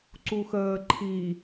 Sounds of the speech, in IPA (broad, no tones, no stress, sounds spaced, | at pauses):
ǀ u x əː ǃʰ i